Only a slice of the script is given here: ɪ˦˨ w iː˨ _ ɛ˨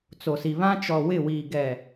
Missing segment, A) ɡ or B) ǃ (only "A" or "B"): A